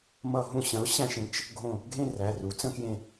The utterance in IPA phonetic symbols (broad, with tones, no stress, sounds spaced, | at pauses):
m ʌ˧˩˧ ɦ ũ˧˩˧ ɕ ə̃˩˥ ʊ̯ ɕ æ̃˦˨ ʃ ẽ˧˥ t͡ʃ | ɡʱ õ˦˨ | ɡʱ ẽ˦˨ r æ˩˧˩ r u˩˥ t͡s ə̃˦˨ k j ẽ˦˨